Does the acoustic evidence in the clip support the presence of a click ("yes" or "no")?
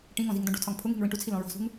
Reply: no